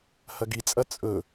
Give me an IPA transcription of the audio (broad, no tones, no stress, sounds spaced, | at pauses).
h ɐ ɡ i t͡sʼ ɐ t͡sʼ ɵ